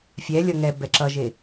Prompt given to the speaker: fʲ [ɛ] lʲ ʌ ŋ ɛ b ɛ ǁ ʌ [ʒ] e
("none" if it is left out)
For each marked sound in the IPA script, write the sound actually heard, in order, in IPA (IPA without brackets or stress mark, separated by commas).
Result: ɛ, ʒ